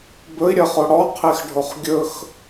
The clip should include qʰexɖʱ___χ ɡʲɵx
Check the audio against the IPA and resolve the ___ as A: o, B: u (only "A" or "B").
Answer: A